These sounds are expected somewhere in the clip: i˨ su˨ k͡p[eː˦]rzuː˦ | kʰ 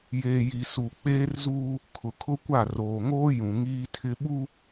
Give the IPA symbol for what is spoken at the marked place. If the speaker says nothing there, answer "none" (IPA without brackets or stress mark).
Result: eː˦